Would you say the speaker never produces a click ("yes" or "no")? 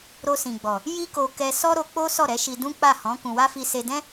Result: yes